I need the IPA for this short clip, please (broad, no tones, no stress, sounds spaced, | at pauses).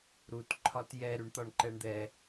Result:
ɾ u t ǃʰ ɒ t j ɛ ɾ y ɳ t̪ ɒ ɳ ǃ ɛ ɳ d̪ ɛ